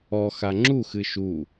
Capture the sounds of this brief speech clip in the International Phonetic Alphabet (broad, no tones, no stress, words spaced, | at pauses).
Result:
ɔ xaŋ͡ǁuxɨ ʃu